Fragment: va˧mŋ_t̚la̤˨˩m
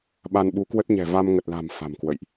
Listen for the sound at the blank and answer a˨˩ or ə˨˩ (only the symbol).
ə˨˩